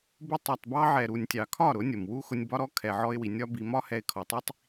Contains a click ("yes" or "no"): no